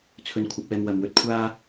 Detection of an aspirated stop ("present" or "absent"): present